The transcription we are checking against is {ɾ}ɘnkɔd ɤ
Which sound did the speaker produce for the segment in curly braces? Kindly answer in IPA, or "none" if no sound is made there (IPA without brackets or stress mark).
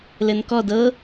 l